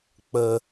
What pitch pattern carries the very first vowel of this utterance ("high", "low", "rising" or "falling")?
low